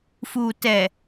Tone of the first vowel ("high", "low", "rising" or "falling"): low